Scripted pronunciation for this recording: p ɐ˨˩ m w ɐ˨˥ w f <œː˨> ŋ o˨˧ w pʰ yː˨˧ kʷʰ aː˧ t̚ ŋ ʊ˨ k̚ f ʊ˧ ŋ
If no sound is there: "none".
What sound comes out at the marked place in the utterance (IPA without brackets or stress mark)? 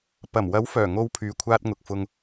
œː˨˩